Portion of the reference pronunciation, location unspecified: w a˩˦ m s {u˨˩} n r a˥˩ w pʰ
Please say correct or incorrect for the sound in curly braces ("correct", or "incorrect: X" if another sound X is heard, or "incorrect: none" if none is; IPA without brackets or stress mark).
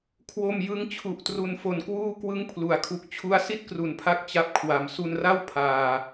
incorrect: u˧